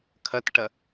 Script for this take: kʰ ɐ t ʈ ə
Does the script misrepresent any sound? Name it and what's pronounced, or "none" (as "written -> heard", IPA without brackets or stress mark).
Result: ə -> ɐ